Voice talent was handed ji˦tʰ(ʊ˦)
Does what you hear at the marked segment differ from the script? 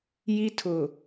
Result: yes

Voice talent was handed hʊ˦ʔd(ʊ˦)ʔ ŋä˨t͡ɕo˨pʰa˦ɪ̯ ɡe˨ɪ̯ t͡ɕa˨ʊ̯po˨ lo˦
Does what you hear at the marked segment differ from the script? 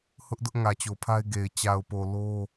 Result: no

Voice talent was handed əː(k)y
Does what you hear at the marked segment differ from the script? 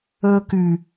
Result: no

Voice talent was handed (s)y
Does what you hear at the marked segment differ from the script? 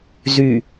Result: yes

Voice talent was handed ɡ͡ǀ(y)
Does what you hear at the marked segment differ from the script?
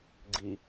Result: yes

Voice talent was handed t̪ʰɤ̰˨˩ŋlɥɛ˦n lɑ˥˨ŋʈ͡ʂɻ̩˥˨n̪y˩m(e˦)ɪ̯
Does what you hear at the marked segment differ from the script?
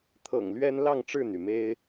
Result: no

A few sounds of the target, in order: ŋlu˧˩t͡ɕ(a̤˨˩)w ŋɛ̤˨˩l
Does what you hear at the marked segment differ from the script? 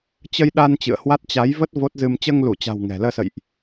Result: no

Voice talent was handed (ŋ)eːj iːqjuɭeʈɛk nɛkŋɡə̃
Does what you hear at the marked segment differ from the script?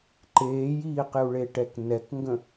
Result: yes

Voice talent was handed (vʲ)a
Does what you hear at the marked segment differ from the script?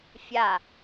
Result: yes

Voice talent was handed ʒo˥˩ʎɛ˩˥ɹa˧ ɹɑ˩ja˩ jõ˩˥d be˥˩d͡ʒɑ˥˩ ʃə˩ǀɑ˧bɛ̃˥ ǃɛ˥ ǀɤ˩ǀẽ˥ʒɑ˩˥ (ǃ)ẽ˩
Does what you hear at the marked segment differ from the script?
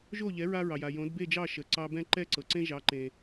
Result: no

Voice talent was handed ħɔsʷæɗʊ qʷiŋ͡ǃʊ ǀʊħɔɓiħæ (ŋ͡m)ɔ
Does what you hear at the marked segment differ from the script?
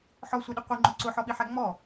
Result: no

